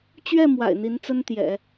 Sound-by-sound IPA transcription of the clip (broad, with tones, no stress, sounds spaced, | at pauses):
t͡ɕ ɥ ɛ˥˩ m w a̰˨˩ ɪ̯ n̪ i˧˥ n t͡s ə˥ n t̪ j ɛ̰˨˩˦